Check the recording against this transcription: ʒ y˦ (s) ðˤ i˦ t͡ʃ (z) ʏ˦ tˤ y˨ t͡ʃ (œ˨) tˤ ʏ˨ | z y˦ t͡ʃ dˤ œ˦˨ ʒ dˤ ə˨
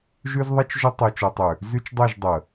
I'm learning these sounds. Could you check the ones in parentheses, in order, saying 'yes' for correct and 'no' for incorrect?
no, no, yes

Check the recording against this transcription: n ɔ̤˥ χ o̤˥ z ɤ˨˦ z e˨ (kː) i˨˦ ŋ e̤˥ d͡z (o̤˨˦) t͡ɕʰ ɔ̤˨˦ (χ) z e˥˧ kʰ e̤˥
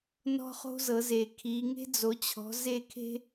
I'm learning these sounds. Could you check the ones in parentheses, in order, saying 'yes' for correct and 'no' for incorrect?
no, no, no

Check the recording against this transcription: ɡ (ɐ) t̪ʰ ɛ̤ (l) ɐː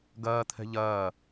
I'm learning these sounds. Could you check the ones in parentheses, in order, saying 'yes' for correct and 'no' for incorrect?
no, no

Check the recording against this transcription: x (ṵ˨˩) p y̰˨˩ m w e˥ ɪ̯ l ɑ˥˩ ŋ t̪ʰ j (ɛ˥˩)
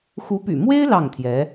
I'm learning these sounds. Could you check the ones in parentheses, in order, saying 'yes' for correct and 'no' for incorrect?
no, no

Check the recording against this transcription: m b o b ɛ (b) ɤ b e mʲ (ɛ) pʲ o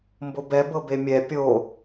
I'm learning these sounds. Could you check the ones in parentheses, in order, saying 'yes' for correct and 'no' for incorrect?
yes, yes

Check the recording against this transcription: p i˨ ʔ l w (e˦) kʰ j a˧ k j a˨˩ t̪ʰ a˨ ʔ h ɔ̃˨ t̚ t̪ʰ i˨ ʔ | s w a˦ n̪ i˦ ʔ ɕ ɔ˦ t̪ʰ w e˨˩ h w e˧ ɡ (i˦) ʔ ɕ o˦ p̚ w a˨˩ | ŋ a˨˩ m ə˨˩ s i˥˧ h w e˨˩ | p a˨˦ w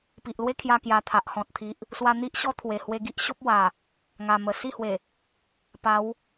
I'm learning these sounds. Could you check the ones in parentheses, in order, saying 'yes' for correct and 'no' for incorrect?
yes, yes

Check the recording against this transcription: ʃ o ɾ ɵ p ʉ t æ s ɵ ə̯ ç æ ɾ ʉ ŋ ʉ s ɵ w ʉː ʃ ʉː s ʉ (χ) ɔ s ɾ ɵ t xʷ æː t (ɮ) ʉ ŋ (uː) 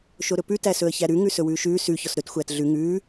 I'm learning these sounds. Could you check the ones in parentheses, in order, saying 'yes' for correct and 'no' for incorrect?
no, yes, no

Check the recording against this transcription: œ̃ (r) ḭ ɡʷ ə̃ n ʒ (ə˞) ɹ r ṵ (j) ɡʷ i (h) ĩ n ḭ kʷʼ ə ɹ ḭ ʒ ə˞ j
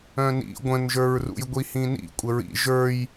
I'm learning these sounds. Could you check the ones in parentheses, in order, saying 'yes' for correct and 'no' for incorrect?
no, yes, yes, yes

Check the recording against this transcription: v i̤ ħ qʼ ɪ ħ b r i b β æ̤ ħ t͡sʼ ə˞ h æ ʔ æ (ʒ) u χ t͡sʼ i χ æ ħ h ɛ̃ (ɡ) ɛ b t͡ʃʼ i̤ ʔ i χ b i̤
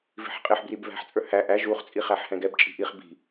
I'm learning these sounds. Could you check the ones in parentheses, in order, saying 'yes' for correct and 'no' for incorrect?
yes, yes

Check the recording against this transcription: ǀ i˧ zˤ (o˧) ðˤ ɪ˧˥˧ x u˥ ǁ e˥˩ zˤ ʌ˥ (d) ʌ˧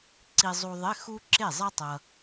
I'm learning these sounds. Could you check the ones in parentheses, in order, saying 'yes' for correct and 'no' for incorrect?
no, no

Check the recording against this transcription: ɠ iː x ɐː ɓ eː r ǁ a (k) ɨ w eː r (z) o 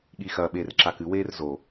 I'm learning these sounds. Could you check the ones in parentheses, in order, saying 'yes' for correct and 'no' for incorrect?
yes, yes

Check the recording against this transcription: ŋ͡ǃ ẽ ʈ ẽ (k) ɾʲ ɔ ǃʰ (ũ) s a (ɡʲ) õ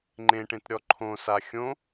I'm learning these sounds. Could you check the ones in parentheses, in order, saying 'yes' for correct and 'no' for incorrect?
no, no, no

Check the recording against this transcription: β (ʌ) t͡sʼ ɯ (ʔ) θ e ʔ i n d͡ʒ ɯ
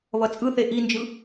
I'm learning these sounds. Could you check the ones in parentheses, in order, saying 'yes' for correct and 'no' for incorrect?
yes, no

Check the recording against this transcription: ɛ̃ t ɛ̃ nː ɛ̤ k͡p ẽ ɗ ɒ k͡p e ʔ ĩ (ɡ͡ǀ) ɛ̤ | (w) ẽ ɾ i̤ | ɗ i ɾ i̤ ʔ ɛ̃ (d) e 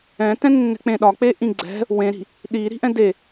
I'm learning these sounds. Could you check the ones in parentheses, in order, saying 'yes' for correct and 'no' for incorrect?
yes, yes, yes

